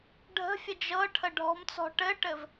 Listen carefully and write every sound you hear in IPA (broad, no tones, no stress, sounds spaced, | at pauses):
ɖʱ ə̤ fʲ ə d͡ʒ ɤ ʈʰ ə ɖʱ ɔ̤ m t͡s ɔ̤ ʈ ɘ ʈ ɘ v